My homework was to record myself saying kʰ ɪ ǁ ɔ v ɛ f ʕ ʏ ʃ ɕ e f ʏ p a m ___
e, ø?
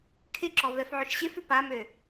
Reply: ø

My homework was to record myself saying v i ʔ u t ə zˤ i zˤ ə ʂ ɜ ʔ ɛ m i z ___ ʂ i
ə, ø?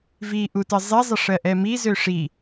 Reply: ø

